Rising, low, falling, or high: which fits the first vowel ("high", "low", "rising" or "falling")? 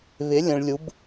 rising